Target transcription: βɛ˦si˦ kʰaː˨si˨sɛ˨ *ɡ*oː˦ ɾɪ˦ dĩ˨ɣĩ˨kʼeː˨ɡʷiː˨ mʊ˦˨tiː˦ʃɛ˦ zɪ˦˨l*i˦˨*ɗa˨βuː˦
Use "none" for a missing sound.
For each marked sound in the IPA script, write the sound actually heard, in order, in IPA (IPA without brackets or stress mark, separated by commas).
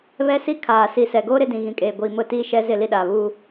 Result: ɡ, i˦